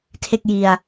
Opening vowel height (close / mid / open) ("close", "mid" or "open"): mid